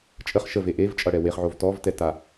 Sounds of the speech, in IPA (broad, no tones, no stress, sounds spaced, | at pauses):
t͡ʃʼ ə χ ʃ ə v e ʔ e v t͡ʃʼ ʌ ɽ ɛ w e χ ʕ o v t ɔ v t ɛ t a